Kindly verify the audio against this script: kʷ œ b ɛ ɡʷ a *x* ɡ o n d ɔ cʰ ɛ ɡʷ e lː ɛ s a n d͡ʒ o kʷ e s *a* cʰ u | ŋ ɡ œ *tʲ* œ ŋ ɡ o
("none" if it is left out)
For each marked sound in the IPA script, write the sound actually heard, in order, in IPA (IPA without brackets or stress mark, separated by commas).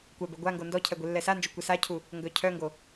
ŋ, a, cʰ